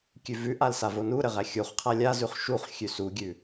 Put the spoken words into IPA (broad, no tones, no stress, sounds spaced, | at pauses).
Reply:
kʲ ʉ v ʉ ʔ a l s a v o n u ɾ ɘ ʁ æ xʲ u χ qʰ a lʲ a z ʉ χ ʃ u χ xʲ ʉ s u ɡʲ ʉ